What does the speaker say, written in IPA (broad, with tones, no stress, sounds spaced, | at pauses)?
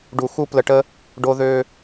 ɖ u˧ x u˦ p l ə˧ ʈ ə˦ | ɖ o˧ ð ø˧